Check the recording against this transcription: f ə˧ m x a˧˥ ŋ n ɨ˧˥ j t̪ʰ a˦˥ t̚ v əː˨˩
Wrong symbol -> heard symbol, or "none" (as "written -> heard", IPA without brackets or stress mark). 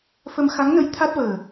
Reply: ɨ˧˥ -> ə˧˥